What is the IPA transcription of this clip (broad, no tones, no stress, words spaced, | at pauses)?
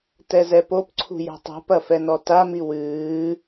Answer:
tɛzɛpopǀʰṳ jɛ̤tˤṳpɐ fɛnɔtami wɨː